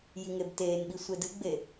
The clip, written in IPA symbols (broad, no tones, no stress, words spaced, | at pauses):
jiŋebteːnɓi sʷedɨɡ͡be